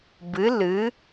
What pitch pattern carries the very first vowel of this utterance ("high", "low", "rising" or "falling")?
rising